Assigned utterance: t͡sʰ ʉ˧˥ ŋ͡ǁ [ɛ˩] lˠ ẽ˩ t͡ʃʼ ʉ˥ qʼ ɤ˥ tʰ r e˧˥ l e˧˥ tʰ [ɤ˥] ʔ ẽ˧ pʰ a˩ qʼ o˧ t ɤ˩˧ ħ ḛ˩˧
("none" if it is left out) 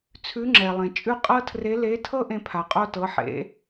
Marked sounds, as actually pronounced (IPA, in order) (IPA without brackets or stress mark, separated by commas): ɛ˩, ɤ˥